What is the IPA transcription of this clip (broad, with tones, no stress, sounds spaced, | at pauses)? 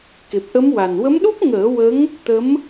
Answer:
k e˨˩ p̚ ʔ ə˧˥ m w a˨˩ n w ə˧˥ m ɗ u˦˥ p̚ ŋ əː˨˩˦ w ə˧˥ ŋ | t̪ ə˧˥ m